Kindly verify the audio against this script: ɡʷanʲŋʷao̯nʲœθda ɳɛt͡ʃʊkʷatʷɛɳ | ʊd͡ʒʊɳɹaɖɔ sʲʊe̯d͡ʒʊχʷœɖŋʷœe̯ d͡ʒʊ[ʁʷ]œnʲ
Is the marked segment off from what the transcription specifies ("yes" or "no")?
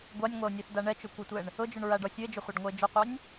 yes